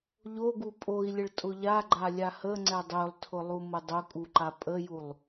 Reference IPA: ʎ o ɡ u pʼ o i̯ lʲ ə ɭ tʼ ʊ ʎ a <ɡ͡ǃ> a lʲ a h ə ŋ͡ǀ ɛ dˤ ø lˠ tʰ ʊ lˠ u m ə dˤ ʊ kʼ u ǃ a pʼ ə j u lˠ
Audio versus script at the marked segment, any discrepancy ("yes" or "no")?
no